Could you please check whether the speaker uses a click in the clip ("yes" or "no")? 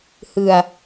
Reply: no